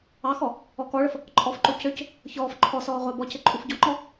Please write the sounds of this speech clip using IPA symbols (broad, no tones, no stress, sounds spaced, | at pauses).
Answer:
ɑ x ɔ | ɔ k ɔ ɭ ə f | ǃʼ ɔ f ǃ o c ø c | ç ɔː f ǃʰ ɔ s ɔː ʁʷ ɑ b ɔ c ɘ ǃʼ u f ɟ ɔ ŋ͡ǃ ɔ